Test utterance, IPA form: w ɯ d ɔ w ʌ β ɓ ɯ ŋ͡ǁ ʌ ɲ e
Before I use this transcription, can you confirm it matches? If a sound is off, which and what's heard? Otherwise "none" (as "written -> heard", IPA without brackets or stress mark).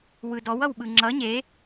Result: β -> w